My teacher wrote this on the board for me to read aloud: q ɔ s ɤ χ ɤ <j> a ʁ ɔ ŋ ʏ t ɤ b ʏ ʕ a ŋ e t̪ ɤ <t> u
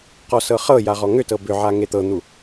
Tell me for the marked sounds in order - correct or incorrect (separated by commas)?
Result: correct, incorrect